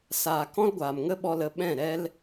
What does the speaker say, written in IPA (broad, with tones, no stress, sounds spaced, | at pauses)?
s aː˨ k ɔ̃˦ l ɡʷ aː˨ m ŋ ə˦ ɓ ɔ˧ l ə˨˦ ɓ ɛ̃˦˨ ɾ ɛ˦ l